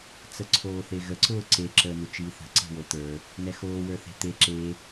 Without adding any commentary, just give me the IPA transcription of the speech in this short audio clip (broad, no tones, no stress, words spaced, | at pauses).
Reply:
t͡səǀʰoːθeɣə ǀʊːǀe ǁəːnut͡ʃiːθə̤ ǀe̤wot̪ə˞ | nɛxoː wə˞θe̤t̪e ǁe